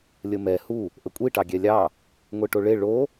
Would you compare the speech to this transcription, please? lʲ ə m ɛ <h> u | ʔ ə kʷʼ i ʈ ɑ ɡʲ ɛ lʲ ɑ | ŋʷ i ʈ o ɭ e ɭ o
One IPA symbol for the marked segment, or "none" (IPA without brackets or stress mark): h